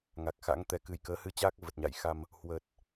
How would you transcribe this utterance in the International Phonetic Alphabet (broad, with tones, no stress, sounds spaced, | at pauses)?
ŋ a˨˩ k̚ x a̰˧˥ ŋ t̪ ɛ˧ k ɨ˨˩ j k əː˨˦ h ɨ˧ t͡ɕ aː˦˥ k̚ v ə˨˩ t̚ ɲ a̰˧˨ j x a˧ m | h w ə˨˩ t̚